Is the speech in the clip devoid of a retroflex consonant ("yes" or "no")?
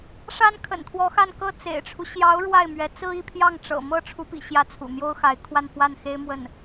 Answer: no